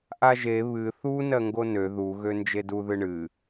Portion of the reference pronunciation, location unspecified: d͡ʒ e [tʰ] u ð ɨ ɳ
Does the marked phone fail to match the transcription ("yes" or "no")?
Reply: yes